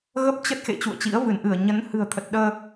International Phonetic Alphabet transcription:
ɣ ə˦˥ p̚ t͡ɕ ə˦˥ t̚ x ḛ˧˨ t͡ɕ ṵ˧˨ ə̯ t͡ɕ ḭ˧˥ ə̯ v ɨ˧˩ n ʔ ɨ˧˩ ə̯ ɲ ə˨˦ n h ɨ̤˨˩ ə̯ t̪ʰ ə˨˩ t̚ ɗ əː˧

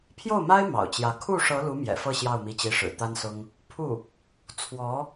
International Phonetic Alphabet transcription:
pʰ j o˥˩ ʊ̯ m a˥ ɪ̯ m ɑ̰˨˩ ʊ̯ t͡ɕ j ä˧˥ kʰ u˥˩ ʂ ɤ˧˥ l u˧˥ m j ɛ̰˨˩ f ɤ˥˧ ɕ j ɑ˥˩ ʊ̯ m i˧˥ t͡ɕ i˧˥ ʂ ɻ̩˨˩ t̪ a˥ n s ʊ˥ ŋ | pʰ u˥˩ | t͡sʰ w ɔ˧˥

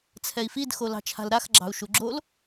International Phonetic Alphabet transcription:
t͡sʰ ɛ i̯ f i d x o l ɑ̤ t͡ʃʰ a̤ l ɾ a x ɡ͡ǁ ɑ̤ u̯ ʃ u ɡ͡ǁ o l

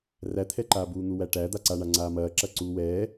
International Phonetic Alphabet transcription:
r æ t̪ʰ ɛ ǃ aː b uː n̪ u w æ ʈ æ d̪ a ǀ a ɳ a ŋ͡ǀ aː m ɐː ǁ ɐ ǀ uː w ɛː

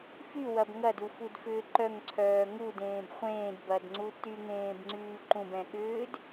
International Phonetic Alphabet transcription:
f y w ɐ b ŋ ɐ d u f u d f ʏː ǃ œ ŋ ǀʰ œː ŋ u d ẽː b χʷ ẽː d b ɐ d ŋ͡ǀ u t y ŋ ẽː b ŋ͡ǀ yː ǃ ũ b ɛ̃ ɠ ʏː d

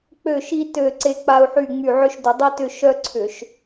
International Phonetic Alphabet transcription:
k͡p ø˦˨ ʃ i˦ t ø˦˨ ǀ e˦ k͡p a˦ u̯ ħ y˦˨ ŋ͡m y˦˨ ʕ ʏ˦ ʃ d ʏ˧˩˧ dˤ i˦ t ʏ˦˨ ʃ œ˦ ǀʰ ʏ˧˩˧ ʃ

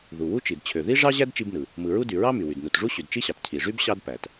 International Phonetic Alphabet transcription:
ð u˩ w u˥ t͡ʃ i˩ d t͡ɕʰ ø˩ ð i˥ ʐ ɑ˥ ʑ æ˥ d t͡ʃ i˥ b n ɯ˩ | m ɯ˩ ɹ u˥ d y˩ ɹ ɑ˥ m y˩ w y˩ d n u˩ t ʐ u˥ ɕ y˩ d t͡ʃ i˥ ɕ ɑ˩ t cʰ i˩ ʐ y˥ b ɕ ɑ˥ d p æ˩ t

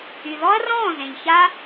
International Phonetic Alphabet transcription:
y˨ ð ɔ˦ ɐ̯ r ɔ̃ː˦˨ z ẽ˨ ʎ ç a˦

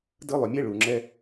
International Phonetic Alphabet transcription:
d ɯ˧ lˠ ʏ˨ mʲ ɛ˧ ɭ u˨ ŋ͡ǁ ɛ˦

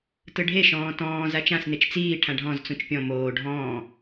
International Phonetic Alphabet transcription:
t ɯ ɖʱ e ʃ ɔ̃ː t ɔ̃ː z a t͡ʃ ã s n̪ e t͡ʃ t͡s iː ʈʰ ã ɖʱ ɔ̃ z t͡s ũ t͡ʃ pʲ ɔ̃ m oː ɖʱ ɔ̃ː

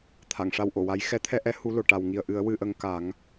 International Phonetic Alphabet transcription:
t̪ʰ a˨˩˨ ŋ ʂ a˧ w ʔ o˨˩˨ w a˧˥ j x ɛ˧˥ t̪ʰ ɛ˧ ʔ ɛ˧˥ h u˧˥ l o˨˩ ʈ a˨˩ w ŋ i˨˩ ə̯ ʔ ɨ˨˩˦ ə̯ w ɨ˧ ʔ ə˧ ŋ k a˨˩˦ ŋ

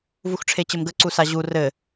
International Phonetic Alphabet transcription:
v u x ʈ͡ʂʰ e t͡ɕ ɘ m ɡ ə ǀ u s a ʑ u r ɘ

